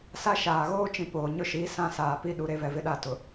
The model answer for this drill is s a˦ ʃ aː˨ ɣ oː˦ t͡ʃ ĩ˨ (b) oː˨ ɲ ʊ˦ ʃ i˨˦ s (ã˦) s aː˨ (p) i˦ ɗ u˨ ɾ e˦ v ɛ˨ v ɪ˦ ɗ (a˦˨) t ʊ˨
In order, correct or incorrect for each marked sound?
incorrect: p, correct, correct, correct

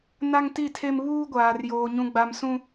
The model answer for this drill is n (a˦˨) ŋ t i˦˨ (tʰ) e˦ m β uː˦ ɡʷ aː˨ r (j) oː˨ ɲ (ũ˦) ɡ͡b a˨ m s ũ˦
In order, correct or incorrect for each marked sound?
incorrect: a˦, correct, correct, incorrect: ũ˨

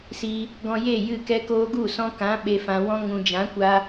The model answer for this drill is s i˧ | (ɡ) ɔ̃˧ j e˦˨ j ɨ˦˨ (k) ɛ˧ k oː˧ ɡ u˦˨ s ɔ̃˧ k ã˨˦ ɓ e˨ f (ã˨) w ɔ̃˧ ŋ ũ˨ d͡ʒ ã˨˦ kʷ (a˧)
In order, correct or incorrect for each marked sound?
correct, correct, correct, correct

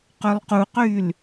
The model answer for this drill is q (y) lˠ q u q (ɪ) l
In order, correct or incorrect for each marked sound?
incorrect: ø, incorrect: y

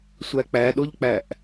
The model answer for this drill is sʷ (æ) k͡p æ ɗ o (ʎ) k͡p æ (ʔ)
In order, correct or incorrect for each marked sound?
correct, correct, correct

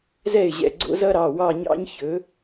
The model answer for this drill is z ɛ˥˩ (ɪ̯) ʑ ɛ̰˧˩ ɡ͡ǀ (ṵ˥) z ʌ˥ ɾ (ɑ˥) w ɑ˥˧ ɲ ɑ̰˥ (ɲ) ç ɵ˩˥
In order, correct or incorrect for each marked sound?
correct, incorrect: o̰˥, incorrect: ɑ˩˧˩, correct

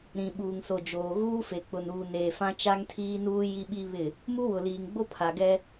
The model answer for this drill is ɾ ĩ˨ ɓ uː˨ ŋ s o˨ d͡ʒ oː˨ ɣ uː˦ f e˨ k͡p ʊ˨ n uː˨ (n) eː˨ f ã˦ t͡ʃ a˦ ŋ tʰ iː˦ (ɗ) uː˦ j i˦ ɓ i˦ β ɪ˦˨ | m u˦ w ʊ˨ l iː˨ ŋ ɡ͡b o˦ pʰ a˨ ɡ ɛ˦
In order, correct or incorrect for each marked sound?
correct, incorrect: n

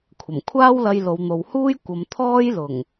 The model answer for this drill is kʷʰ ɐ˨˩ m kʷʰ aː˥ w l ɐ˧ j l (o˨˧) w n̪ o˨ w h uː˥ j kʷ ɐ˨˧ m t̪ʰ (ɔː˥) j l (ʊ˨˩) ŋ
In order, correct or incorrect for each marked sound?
correct, correct, correct

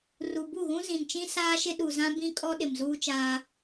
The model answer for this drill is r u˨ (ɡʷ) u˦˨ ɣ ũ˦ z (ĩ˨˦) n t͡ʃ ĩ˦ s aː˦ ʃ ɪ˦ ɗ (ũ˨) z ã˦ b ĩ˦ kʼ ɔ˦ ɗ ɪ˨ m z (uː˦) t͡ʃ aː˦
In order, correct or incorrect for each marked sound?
incorrect: b, incorrect: ĩ˨, incorrect: u˨, correct

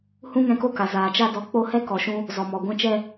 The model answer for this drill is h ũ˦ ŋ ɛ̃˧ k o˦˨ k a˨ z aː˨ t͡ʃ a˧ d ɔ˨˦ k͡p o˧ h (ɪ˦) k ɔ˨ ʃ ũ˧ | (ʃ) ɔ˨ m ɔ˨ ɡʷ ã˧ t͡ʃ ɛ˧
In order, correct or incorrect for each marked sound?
incorrect: ɛ˦, incorrect: z

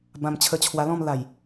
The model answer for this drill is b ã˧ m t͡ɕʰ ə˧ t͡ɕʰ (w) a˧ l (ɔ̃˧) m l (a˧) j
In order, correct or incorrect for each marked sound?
correct, incorrect: ɔ̃˥˧, incorrect: a˨˩

